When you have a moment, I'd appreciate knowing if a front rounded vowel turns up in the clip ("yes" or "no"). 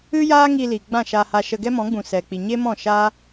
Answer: no